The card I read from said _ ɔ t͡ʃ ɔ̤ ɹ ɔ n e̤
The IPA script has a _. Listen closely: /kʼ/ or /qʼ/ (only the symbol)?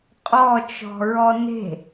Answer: qʼ